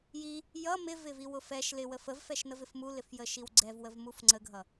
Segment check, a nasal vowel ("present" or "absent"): absent